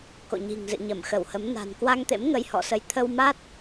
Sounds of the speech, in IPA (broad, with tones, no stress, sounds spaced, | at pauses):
k o̰˧˨ ɲ i̤˨˩ ŋ z ɨ̰˧˨ ɲ ə˧˩ m x ə˧˩ w h ə˨˦ m n a̤˨˩ n k w a˧ ŋ t̪ ḛ˧˥ m ŋ ə˧ j h ɔ̰˧˨ s ə˨˦ j t̪ʰ ə˧ w m a˦˥ t̚